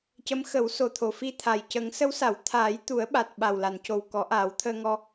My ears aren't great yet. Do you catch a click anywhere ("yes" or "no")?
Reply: no